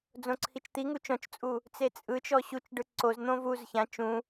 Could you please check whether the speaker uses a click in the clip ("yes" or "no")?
yes